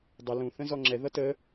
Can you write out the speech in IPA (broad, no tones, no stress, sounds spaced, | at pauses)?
dˤ ə l ũ θ ə̃ z ɔ ŋ͡ǁ ɛ ð ʌ t ə